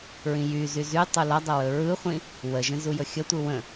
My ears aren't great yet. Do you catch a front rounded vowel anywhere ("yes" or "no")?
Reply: yes